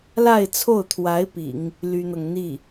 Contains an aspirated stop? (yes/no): yes